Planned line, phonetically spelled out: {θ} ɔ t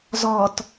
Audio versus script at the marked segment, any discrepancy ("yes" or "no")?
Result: yes